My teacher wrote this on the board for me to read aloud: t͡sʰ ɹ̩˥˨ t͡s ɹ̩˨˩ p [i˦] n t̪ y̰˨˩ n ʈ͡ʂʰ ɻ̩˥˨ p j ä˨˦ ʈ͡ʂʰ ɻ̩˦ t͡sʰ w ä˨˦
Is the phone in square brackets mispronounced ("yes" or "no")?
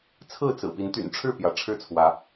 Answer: yes